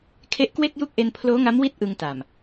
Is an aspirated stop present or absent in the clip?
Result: present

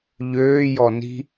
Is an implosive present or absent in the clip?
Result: absent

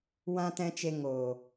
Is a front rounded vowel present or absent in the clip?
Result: absent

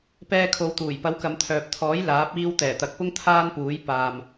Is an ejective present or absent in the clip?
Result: absent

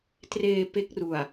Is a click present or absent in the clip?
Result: absent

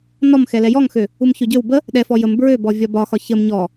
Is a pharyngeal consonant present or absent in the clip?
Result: absent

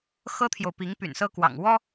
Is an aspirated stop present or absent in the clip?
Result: present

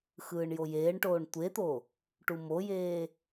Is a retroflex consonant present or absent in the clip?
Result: present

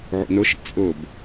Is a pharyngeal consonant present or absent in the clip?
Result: present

